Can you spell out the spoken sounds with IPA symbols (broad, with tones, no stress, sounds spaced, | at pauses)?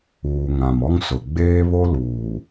uː˨ ŋ ã˨ m ɔ˦ ŋ s ʊ˨ ɡ͡b eː˦ β o˦ l uː˨